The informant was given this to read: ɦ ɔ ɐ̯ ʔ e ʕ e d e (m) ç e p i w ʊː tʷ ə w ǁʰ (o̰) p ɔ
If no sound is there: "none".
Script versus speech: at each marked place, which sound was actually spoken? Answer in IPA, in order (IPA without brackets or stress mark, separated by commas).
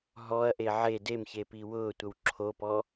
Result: m, o